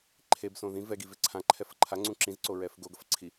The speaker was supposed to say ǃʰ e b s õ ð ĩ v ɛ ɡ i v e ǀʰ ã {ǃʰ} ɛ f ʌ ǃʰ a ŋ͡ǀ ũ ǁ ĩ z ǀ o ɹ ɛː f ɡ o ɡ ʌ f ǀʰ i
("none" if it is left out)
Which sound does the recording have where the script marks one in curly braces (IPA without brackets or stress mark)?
ǃʰ